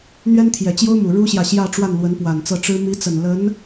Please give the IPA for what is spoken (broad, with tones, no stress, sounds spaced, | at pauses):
n̪ ɥ ɛ˥ n t̪ʰ j ɛ˨˩ t͡ɕ j o˥ ʊ̯ m u˨˩ ɻ u˥ ɕ j ä˨ ɕ j ä˥˧ ʈ͡ʂ w a˥˩ n l w ə˧˥ n p w a˨˩ n t͡s ɤ˥˩ ʈ͡ʂ ɻ̩˥ m i˧˥ t͡s ə˨˩ n l ə˧˥ n